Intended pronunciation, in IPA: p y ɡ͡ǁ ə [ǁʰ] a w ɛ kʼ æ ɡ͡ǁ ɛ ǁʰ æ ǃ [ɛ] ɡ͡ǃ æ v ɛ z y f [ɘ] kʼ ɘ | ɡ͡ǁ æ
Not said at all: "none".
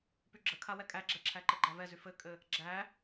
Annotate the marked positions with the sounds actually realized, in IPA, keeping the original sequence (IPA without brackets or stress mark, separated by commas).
kʰ, ɘ, ɘ